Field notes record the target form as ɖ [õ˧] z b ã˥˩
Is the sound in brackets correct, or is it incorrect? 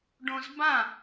correct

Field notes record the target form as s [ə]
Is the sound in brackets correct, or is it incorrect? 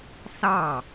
incorrect: ɑ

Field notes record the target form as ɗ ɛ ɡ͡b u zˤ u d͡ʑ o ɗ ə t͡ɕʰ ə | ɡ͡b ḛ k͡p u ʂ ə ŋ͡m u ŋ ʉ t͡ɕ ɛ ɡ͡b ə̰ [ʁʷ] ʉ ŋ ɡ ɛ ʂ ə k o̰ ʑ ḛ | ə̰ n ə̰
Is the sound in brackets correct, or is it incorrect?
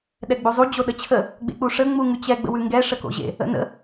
incorrect: w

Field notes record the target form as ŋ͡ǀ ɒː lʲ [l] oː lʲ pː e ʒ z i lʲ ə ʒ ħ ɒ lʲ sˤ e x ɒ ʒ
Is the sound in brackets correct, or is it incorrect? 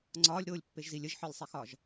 incorrect: ɾ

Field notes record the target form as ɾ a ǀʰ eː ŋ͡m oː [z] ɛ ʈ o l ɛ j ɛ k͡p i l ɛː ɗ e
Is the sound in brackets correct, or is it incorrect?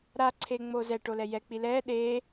correct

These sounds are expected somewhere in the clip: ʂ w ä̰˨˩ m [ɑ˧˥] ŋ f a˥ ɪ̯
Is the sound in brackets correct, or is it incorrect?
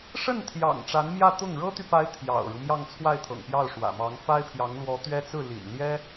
correct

